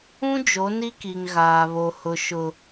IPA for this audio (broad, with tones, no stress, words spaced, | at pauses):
ũ˦ d͡ʒo˨˦ni˦ ki˨ŋɣaː˨βo˨ hʊ˨ʃʊ˨